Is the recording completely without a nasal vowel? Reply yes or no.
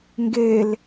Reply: yes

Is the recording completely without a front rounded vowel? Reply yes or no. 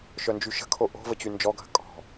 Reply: no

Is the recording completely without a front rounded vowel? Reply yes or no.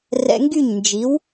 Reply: no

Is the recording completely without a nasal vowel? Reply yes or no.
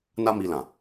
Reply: no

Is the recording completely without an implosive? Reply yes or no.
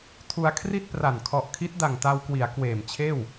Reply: yes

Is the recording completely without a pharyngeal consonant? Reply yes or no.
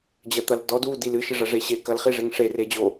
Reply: yes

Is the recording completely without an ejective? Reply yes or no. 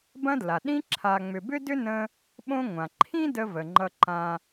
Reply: yes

